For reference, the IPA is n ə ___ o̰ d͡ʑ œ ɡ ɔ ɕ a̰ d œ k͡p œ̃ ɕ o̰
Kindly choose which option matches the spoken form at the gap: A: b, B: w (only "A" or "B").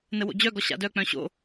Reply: B